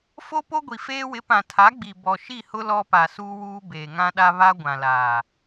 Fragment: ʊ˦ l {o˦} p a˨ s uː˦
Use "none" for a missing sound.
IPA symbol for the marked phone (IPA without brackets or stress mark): ɔ˦